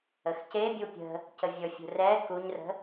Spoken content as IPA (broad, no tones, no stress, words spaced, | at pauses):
əxcebʲu pʲə̤ | cəvʲɵfʲṳ rɛ kuɲrə̤